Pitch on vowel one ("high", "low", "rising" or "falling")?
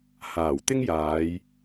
low